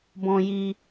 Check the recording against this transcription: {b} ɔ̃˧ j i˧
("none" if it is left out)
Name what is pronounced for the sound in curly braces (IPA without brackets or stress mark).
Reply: b